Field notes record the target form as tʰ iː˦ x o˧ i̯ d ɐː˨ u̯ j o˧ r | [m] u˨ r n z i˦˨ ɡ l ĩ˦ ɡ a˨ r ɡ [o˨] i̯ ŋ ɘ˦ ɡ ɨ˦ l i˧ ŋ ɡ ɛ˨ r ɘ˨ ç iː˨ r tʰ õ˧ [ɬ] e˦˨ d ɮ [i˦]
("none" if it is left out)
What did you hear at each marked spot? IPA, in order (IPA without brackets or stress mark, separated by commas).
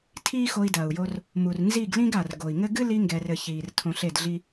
m, o˨, ɬ, i˦